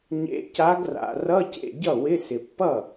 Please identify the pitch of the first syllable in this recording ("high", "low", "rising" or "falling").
rising